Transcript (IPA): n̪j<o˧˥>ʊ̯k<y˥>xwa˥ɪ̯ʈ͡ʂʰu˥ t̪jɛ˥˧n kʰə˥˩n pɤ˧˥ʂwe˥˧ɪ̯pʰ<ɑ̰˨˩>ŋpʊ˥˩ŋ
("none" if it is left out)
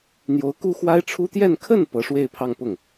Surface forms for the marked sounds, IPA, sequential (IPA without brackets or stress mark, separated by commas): o˧˥, u˥, ɑ˥˧